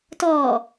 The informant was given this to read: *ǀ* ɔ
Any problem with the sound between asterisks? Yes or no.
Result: yes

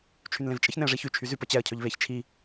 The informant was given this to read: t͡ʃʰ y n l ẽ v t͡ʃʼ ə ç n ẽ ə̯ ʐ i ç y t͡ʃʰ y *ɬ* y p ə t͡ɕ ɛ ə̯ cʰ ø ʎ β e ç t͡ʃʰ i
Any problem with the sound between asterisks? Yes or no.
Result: yes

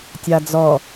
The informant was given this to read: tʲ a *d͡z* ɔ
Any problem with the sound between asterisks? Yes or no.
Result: no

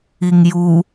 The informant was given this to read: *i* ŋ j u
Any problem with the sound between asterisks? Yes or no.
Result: no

